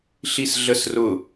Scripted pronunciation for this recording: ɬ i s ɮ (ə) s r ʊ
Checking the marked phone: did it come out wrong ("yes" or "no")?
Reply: no